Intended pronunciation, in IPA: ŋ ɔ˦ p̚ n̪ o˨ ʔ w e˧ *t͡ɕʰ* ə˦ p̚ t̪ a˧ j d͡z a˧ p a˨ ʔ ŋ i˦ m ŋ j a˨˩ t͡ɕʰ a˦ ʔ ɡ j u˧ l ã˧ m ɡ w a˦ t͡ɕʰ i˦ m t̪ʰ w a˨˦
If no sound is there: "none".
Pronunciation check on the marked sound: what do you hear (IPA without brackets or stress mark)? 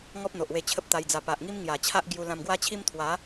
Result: t͡ɕʰ